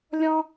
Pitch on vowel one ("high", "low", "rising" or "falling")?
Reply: high